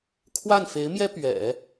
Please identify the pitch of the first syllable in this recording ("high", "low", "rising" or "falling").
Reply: falling